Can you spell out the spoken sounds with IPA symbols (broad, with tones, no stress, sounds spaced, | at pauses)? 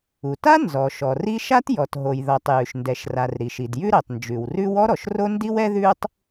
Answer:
u˩ t a˥ n z ɔ˩ ʃ ɔ˩ r i˥ ʃ a˥ t j ɔ˩ t ɦ o˩ j ð ɔ˩ tˤ j ʉ˩ ʃ n d ɛ˩ ʃ r a˩ r ɾ i˩ ʃ i˩ d j ʉ˥ ɾ ɛ˩ tˤ n d͡ʒ ʉ˩ w r ʉ˥ w ɔ˥ ɾ ɔ˩ ʃ r o˥ n d i˥ w ɛ˥ ð ʉ˥ tˤ